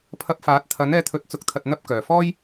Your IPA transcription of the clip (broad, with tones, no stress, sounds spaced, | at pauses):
pʰ ɐ˧ p̚ f aː˨˥ t̚ t̪ʰ ɐ˨˥ n ɛː˧ t̪ʰ ɵ˨˥ t̚ t͡s ʊ˨ k̚ t̪ʰ ɐ˨ t̚ n̪ ɐ˥ p̚ k œː˨˩ f ɔː˥ j